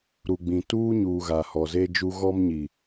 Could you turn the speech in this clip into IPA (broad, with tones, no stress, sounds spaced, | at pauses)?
ɾ u˨ ɡ͡b ĩ˨ t uː˦ ɲ uː˨ ɣ a˨ h ɔ˨ z e˦ d͡ʒ u˦ ɣ ɔ˦ m ɲ i˨